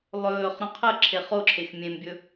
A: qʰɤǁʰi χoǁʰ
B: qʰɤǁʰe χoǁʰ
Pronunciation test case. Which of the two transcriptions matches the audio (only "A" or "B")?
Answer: B